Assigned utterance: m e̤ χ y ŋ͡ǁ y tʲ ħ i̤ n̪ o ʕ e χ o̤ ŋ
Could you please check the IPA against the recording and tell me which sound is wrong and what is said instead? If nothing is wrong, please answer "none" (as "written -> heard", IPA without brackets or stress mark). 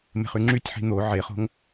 none